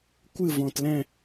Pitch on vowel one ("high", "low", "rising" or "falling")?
falling